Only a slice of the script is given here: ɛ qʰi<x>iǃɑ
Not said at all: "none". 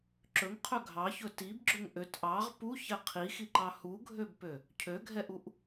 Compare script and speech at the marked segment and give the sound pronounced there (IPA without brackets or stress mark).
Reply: x